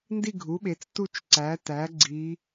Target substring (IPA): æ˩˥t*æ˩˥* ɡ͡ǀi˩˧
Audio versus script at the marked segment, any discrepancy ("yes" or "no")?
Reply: no